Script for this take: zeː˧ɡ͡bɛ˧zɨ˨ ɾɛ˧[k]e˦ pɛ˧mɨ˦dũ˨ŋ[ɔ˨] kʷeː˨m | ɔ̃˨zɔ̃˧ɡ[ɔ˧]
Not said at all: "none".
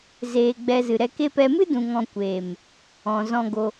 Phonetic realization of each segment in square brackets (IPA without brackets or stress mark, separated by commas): k, ɔ̃˨, o˧